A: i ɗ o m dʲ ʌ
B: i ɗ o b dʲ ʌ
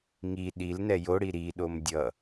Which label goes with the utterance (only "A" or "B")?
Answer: A